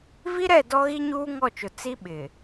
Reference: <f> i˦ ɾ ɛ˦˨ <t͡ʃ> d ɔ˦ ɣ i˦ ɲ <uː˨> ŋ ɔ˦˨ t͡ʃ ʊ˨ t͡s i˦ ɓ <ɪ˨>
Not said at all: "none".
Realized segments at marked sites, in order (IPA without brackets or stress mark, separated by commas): v, none, uː˦, ɪ˨